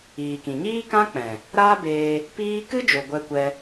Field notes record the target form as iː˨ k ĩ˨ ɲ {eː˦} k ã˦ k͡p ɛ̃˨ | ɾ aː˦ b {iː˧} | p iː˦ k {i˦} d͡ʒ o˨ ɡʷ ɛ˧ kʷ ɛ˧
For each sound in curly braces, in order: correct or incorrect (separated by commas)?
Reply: incorrect, incorrect, incorrect